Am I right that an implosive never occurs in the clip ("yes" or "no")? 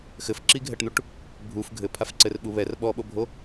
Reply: no